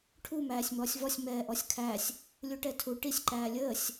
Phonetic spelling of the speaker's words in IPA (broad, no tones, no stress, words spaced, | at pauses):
ʈʰu mæːsʲmɔːsʲvɔsʲ mɛːʔɔsʲkʰæsʲ | lʲuʈɛtʰu ʈisʲ ǃæːlʲəːsʲ